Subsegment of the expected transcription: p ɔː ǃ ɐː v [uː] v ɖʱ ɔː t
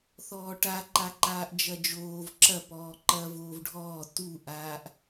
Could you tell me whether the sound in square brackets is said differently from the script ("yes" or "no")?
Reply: yes